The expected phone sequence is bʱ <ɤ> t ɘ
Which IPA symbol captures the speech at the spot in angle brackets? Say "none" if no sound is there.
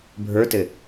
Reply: ə˞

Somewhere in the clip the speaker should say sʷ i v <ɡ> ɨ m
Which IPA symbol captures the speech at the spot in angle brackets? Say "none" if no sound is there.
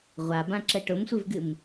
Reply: ɡ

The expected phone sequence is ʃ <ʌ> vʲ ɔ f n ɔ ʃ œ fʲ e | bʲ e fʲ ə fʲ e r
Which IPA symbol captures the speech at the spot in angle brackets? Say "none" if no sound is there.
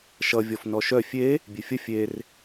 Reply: ʌ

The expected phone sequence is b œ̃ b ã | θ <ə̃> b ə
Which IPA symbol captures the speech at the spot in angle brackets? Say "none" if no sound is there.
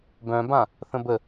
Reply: ə̃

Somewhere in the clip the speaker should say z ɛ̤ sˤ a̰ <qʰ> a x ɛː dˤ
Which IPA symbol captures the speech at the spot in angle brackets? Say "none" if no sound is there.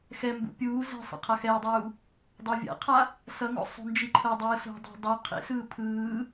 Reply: qʰ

